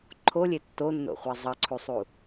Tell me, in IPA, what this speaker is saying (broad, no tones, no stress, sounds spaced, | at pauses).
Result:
ǃʰ o lʲ e tː o nː o̰ χʷ a zˤ ʌ ǀʰ u sˤ u